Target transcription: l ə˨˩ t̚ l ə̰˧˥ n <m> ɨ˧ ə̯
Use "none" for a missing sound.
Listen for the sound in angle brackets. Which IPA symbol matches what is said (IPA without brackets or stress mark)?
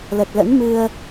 m